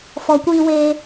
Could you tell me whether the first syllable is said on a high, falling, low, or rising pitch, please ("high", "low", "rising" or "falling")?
low